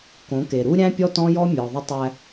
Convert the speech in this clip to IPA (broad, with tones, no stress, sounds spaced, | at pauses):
k õ˨˦ k e˨ ɾ u˦ ɾʲ æ̃˦ pʲ ɔ˦ t ɔ̃˦ j ɔ˦ mʲ ɔ˨ ðˤ ɪ˦ tˤ æ˦